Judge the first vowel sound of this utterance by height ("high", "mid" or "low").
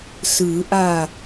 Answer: high